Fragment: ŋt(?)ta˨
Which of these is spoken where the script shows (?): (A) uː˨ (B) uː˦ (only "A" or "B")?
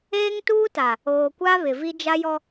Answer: B